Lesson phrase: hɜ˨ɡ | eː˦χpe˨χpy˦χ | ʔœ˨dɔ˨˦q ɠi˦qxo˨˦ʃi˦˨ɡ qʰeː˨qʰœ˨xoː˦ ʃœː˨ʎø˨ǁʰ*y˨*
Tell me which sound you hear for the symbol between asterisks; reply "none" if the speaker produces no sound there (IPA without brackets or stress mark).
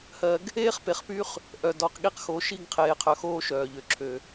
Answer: ø˨